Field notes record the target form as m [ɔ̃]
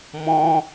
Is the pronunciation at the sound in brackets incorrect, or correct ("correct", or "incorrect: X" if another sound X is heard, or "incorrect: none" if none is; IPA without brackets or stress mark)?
correct